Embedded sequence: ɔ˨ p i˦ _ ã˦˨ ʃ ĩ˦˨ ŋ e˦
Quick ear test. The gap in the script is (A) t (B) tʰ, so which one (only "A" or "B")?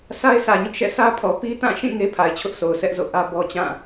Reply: A